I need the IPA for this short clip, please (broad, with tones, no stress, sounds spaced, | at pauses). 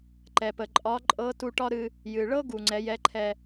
ǃ ɛ˩ p ə˩ ǃʼ ɒ˧˥ ǃʼ ɤ˧˥ t u˧ ʈ ɒ˥ ɾ ɨ˧ | j ɨ˩ ɭ ɤ˥ ɡ u˩ ŋ͡ǀ ɛ˩˧ j ɛ˧˥ ǃʰ ɛ˧